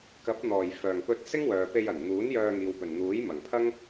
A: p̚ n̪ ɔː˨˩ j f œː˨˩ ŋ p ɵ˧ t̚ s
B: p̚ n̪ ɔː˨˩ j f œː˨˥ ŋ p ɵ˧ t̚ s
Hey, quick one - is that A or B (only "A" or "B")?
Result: A